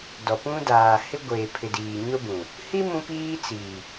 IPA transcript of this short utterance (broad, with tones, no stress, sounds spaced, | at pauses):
d ɔ˨ p ũ˦ d aː˨ h ɪ˦ ɡʷ eː˨ pʰ ɪ˨ d iː˨ ɲ ʊ˦ b ũ˨ | h i˦ m ũ˦ p iː˦ t͡s i˨